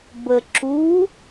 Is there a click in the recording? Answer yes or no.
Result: yes